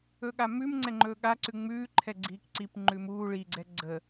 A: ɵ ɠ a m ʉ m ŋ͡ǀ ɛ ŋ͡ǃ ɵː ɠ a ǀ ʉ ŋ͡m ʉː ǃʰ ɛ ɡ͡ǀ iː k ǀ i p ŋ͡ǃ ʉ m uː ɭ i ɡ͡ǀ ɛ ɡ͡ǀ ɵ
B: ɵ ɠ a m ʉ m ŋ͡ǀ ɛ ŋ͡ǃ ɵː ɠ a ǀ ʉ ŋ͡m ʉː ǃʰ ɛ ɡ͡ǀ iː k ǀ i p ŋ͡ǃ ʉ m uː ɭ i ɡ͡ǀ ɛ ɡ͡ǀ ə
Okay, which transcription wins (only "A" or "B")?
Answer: B